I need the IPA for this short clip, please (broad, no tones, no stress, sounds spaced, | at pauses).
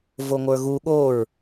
v o ŋʷ ə˞ ɣ u ɠ o ɹ